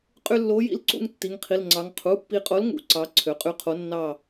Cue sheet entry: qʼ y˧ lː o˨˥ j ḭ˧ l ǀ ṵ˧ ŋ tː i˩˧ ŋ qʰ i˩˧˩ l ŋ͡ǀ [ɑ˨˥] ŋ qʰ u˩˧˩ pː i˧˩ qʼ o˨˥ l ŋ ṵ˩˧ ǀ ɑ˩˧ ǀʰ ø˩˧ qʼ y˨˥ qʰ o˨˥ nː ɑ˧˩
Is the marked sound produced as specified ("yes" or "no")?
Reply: no